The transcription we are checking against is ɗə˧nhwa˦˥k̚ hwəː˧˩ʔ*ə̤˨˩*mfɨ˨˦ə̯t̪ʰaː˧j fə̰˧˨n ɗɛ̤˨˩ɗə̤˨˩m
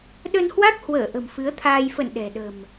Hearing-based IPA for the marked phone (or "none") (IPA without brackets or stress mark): ə̤˨˩